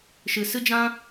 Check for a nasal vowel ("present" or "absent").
present